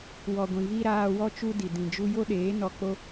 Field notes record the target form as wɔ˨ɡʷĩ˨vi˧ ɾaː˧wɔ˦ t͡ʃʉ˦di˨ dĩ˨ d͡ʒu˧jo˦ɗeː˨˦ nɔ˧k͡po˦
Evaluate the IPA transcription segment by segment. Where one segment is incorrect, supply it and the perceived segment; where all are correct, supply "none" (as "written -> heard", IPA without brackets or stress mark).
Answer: ʉ˦ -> u˦